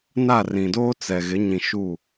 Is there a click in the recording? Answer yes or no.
no